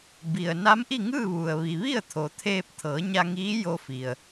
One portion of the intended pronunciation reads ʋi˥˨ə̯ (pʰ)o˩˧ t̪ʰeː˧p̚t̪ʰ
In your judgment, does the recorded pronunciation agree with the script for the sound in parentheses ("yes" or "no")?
no